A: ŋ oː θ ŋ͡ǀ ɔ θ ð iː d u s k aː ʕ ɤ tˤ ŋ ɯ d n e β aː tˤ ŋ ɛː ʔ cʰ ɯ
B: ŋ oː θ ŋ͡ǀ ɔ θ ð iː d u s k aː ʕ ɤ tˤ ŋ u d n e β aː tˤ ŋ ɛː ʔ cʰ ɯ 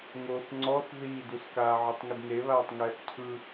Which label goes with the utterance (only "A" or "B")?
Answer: B